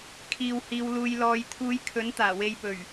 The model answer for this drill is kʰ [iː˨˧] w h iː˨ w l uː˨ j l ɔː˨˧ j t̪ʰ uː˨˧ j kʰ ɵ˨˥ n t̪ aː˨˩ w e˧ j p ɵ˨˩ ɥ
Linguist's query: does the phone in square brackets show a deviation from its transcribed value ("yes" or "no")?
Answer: yes